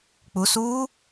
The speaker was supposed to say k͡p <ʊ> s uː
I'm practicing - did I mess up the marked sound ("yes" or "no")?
yes